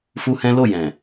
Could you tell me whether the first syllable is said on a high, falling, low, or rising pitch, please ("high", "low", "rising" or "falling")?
high